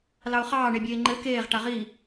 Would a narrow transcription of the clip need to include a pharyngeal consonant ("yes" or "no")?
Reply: no